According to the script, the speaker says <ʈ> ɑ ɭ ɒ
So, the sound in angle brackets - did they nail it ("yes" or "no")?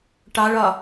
yes